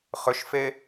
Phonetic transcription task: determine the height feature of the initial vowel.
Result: high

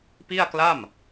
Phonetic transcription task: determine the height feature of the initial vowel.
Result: high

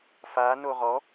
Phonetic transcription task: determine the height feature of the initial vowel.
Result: low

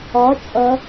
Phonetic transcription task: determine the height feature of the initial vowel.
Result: low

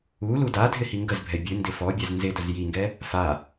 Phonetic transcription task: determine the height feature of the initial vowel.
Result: high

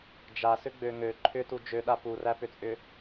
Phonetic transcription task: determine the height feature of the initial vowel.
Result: low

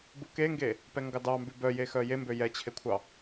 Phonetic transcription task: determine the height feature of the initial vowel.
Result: high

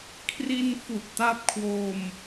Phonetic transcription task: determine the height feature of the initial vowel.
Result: high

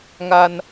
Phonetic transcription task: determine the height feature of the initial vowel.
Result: low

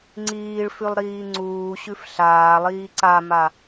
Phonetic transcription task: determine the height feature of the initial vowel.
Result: high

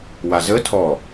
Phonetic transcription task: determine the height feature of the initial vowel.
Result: low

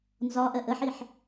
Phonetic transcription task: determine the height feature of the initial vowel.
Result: low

